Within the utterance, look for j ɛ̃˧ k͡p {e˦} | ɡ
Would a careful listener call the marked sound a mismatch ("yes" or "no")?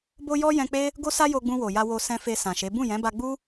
no